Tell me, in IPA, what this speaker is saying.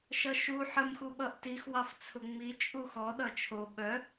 ʃ ʌ ʃ u ħ ə m x u ɓ ʌ ʔ t i x w ɑ f t͡sʰ ʊ ŋ͡m i t͡ʃʼ u x ɔ ɗ ʌ t͡ʃʰ o ɓ œ

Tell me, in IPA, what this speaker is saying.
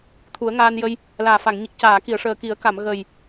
t̪ʰ u˨˩˦ ə̯ ŋ aː˧ n j ə˧ j | l aː˨˩ f a˨˩˨ ŋ ɲ i˨˩ k̚ c aː˨˩˨ k i˨˩˨ ə̯ ʂ əː˨˩ k i˨˩˦ ə̯ k a˨˩˨ m ɣ ə˨˩ j

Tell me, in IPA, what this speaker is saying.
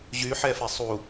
ʑ y ħ ɛ f e sˤ u

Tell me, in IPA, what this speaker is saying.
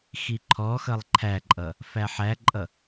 x i ǃʰ ɔ x ʌ lˠ ǃʰ æ ǃʼ ʌ | f æ ħ æ ǃʼ ʌ

